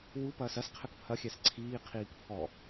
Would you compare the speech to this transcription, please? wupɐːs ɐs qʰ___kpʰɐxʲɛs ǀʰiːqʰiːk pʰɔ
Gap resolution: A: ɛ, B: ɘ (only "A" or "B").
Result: B